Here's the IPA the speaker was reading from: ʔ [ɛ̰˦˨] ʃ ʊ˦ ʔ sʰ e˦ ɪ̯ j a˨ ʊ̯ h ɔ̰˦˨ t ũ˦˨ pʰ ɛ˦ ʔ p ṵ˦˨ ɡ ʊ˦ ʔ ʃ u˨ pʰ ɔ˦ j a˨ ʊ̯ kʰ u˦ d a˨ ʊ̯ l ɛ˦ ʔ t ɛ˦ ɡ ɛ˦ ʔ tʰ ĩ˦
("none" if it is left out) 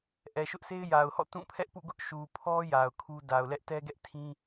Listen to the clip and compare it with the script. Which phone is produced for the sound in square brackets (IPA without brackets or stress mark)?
ɛ˨